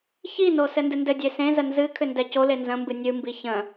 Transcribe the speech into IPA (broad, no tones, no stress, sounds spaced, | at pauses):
ç i n o s ɘ n d ɨ n d ɘ dʲ e s ẽ z ə n z ɨ kʰ ʏ n d ɛ c o l e n z ə̃ m b ɨ nʲ ɨ m b i ç ə̃